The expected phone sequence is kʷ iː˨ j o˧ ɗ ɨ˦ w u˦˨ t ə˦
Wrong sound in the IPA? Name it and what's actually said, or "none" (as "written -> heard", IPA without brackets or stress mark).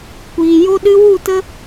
none